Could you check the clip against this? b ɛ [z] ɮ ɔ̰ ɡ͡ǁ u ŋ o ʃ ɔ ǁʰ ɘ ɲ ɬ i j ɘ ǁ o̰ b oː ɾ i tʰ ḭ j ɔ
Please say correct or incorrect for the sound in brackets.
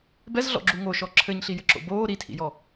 correct